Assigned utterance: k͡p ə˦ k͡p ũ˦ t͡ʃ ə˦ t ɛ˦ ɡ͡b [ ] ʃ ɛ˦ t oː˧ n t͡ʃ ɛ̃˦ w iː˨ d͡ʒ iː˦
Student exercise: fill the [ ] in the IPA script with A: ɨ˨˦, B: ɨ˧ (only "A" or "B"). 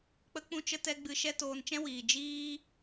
B